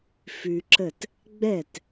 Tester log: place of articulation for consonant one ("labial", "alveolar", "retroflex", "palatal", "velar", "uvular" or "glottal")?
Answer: labial